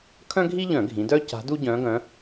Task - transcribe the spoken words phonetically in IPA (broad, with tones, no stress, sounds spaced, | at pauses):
kʰ œ̃˥ ɡʱ i˥ ʎ œ̃˧˩˧ ɡʱ ĩ˩˧ d œ˥ c a̤˧˥ d u˥ ɟ œ̃˧˥ ɡ œ̃˧˥